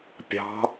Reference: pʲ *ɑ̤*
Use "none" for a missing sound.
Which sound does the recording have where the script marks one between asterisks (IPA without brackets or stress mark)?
ɑ̤